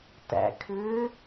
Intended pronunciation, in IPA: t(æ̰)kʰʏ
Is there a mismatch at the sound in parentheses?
no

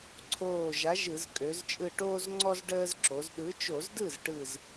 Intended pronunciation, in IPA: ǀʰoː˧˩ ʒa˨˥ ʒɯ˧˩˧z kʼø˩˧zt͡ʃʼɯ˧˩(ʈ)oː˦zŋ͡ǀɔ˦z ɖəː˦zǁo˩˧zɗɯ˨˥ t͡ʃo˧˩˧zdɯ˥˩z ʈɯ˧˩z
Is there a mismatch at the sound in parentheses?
no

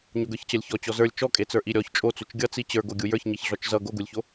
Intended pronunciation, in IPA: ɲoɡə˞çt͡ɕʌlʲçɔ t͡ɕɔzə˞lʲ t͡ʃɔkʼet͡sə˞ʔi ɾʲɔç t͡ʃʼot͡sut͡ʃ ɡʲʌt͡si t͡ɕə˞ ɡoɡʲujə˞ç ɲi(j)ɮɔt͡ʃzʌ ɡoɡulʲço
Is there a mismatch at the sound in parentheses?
yes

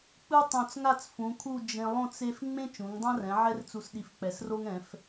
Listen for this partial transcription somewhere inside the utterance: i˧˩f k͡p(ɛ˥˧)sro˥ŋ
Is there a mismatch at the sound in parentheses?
yes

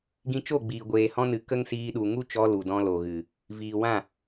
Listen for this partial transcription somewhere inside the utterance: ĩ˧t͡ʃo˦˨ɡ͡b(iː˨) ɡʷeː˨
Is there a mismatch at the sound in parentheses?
no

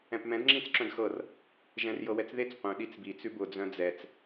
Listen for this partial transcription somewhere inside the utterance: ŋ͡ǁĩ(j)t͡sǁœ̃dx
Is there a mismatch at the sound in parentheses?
yes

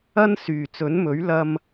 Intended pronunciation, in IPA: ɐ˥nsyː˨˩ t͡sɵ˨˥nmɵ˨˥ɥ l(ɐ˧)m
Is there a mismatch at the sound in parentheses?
no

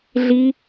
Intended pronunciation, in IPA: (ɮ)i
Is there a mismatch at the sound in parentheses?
no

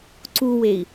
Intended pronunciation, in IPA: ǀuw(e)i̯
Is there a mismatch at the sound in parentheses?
no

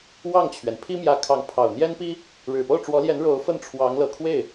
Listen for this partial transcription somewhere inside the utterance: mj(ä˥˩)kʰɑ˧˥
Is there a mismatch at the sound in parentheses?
yes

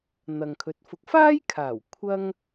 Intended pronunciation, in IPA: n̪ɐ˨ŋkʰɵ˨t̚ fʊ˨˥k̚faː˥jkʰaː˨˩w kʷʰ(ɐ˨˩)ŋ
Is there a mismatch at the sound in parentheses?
yes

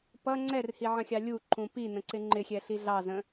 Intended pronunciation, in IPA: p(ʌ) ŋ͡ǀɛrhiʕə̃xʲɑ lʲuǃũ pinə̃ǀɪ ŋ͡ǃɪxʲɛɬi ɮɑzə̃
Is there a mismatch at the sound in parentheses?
no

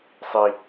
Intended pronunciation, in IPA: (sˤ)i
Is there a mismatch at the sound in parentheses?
no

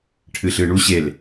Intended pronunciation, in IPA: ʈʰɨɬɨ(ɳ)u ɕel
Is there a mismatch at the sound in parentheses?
no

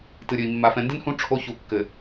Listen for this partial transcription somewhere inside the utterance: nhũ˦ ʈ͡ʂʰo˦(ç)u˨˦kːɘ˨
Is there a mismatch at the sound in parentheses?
no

